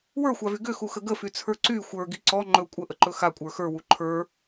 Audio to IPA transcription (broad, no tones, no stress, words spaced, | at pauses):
wə˞xʷavy ɡʏxuxə ɡəfyt͡sʰə˞ ǀy xʷə˞ɡi ǀɔ ŋ͡ǃɵ kʷʼəʔəǃɵ xakʷʼə˞ xə˞wu ǃʰə˞